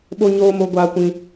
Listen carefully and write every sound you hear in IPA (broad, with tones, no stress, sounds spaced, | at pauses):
ɓ o˦ ɲ oː˦ m o˦ ɡʷ aː˦ kʷ ĩ˦